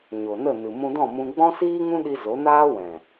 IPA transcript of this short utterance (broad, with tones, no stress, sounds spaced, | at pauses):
ɲ o˨ n ə˦˨ n ɨ˨ m ũ˧ d ɔ̃˦˨ m ũ˧ ɡ͡b ɔ̃˦ s iː˦ ŋ ũ˦ ɗ i˧ z o˨˦ n aː˦ w ɛ̃˨